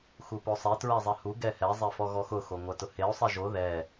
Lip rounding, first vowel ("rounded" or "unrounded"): rounded